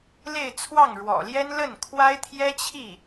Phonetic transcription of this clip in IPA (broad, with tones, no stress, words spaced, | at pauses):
le˥˧ɪ̯t͡sʰwɑ˥˩ŋɻwɔ̰˨˩ljɛ˥n lə˥˩nkʰwa˥ɪ̯ t̪ʰjɛ˥t͡ɕʰi˥˩